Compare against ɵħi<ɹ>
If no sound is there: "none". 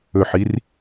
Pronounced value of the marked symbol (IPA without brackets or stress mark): r